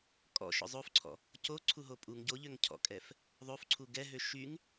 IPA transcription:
kʼɔ̰ʃɔ̰ zˤofǀʰɔ̰ | coǀʰuɦo pʼuŋ ɟoʎøŋ cʰɔ̰kʼɛf | ðˤofǀʰu ɡɛɦø ʃyŋ

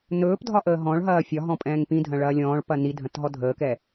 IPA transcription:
nɵːp dʱɒʔəːɦɔ̃ɭɦɐː fʲɒɦɔ̃ pʼɛ̃ːŋpĩdʱɐ̃ ɭɐːlʲɔ̃ːɭpɐ nidʱɐ̃t ɦɔdʱəːkɛ

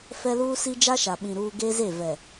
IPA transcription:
fɛ˦luː˦si˦ d͡ʒa˦ʃa˨ɓĩ˨ ɾuː˦ ɡe˦ze˦˨ vɛ˨

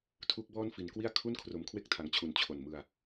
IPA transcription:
tʰu˦˥k̚bɔː˥˩nfi˨˩n kwi˥˩a̯kʰu˥˩n kʰro˩˦mkʰwe˦˥k̚tʰa˨˩ŋt͡ɕʰu˨˩n t͡ɕʰo˨˩nmɯ˧a̯

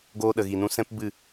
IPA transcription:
ɡoː˧ɗə˨ɣi˨nũ˧ sɛ̃˦pbɨ˦˨

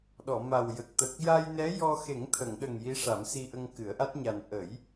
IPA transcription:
ɗɔ˨˩˨ma˨˩wjə˨˩k̚ t̪ə˨˩k̚ ja˧jnɛ˧˥ jɔ˧ xe˨˩˦ŋt̪ʰə˨˩˨ŋɗə˨˩ŋ ji˧˥ʂa˨˩˦msi˧ʔə˧ŋ kɨ˨˩˦ə̯ʔa˦˥t̚ ɲa˨˩n ʔə˨˩˦j

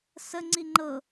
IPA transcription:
sə ŋ͡ǀiŋ͡ǃɤ

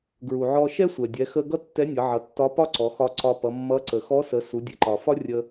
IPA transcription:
ɡɹu˩ʕɔ˧ ʃɛ˥sʷɛ˩ dʲɛ˩˧xə˧ ɡʌ˥tːɛ˧˥nʲʌ˩˧ʕʌ˩˧ tːɒ˧˥pɒ˥ǀɔ˩˧xɒ˧ ǀɒ˧pʌ˩˧mːʌ˧˥ ǀə˩xɔ˧˥sə˩˧ su˩˧dʲɛ˩ǃɒ˩fɒ˥ rʲə˧

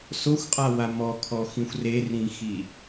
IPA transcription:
soxʷqʼawa mɔkʰɔxĩxʷ rerĩxi

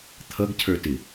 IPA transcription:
t̪ʰʌɡcʰə˞tɪ

